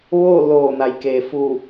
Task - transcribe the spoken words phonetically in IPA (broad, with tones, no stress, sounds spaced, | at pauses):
ʋ oː˥˨ l oː˧˩ n a˩ j k e˩ f uː˧˩